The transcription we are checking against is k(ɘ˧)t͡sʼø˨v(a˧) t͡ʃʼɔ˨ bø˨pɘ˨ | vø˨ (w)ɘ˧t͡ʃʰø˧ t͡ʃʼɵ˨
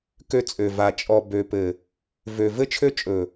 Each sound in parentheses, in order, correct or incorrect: incorrect, incorrect, incorrect

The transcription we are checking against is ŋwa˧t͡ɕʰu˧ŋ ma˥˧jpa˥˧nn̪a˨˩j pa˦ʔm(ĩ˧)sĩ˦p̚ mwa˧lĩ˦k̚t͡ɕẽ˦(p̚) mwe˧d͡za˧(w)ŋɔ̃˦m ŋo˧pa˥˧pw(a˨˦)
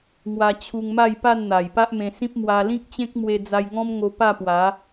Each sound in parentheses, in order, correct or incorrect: incorrect, incorrect, incorrect, correct

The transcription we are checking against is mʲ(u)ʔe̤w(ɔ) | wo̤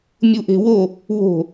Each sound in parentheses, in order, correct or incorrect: correct, incorrect

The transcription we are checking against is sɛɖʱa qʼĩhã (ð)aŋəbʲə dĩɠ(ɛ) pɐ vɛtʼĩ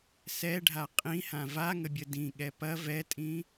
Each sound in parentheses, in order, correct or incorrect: incorrect, correct

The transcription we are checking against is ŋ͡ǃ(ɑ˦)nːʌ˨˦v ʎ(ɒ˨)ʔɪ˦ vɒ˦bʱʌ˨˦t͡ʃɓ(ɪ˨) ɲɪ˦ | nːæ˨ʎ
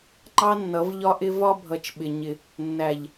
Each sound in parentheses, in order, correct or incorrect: correct, incorrect, correct

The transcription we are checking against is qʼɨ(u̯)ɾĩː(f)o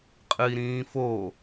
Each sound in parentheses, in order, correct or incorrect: incorrect, correct

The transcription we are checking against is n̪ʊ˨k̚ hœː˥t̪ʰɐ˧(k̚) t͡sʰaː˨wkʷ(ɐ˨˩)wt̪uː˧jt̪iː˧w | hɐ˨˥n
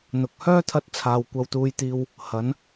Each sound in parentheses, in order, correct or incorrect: incorrect, incorrect

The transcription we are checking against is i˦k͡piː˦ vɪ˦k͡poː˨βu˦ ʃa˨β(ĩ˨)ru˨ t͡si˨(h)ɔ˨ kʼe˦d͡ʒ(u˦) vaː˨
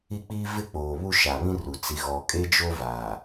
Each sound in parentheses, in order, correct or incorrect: incorrect, incorrect, incorrect

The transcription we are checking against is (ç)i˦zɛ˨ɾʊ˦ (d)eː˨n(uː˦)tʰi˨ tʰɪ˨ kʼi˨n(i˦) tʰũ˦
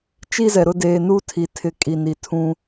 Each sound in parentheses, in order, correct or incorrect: incorrect, correct, correct, incorrect

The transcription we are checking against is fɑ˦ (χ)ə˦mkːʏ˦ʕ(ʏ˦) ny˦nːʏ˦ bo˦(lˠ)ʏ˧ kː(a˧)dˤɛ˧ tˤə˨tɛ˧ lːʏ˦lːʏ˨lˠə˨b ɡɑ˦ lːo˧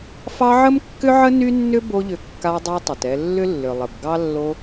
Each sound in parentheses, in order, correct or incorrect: incorrect, incorrect, incorrect, correct

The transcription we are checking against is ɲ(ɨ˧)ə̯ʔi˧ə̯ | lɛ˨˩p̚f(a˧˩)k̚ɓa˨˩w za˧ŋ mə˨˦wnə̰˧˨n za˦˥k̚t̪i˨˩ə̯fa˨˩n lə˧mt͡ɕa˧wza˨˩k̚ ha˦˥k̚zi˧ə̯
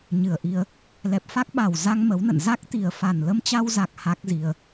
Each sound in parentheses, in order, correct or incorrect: incorrect, incorrect

